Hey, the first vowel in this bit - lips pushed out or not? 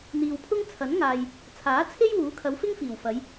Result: no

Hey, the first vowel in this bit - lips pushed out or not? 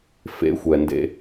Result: no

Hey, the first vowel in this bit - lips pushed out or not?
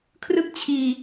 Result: no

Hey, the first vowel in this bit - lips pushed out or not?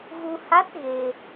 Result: yes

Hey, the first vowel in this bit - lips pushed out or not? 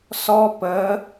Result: yes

